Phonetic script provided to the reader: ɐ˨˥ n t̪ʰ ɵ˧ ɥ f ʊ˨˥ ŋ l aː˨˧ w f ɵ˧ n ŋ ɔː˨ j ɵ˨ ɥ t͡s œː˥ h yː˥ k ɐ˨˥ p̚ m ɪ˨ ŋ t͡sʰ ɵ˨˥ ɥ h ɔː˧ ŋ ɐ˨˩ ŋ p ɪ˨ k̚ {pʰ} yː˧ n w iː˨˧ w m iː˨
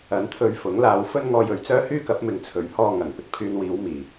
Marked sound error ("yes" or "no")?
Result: no